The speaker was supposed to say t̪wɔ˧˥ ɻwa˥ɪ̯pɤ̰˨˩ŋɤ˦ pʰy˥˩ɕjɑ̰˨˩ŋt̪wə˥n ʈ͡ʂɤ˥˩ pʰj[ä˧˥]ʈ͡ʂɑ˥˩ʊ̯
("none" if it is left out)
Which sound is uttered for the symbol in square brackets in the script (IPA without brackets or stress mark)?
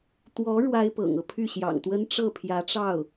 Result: ä˧˥